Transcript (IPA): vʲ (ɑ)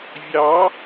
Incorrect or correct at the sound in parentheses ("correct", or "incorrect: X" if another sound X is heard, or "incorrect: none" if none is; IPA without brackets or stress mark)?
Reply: correct